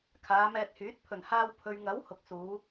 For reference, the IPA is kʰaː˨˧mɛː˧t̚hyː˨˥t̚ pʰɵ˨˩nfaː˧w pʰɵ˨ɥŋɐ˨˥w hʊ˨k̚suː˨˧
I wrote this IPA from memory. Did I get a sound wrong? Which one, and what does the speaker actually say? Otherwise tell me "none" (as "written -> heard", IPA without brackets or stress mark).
f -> h